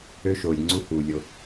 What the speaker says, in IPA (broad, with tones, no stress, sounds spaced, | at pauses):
ø˦ ʃ oː˨ lʲ ŋ͡ǀ u˦ h uː˨ lʲ o˧